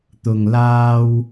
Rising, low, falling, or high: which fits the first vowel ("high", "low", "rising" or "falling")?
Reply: low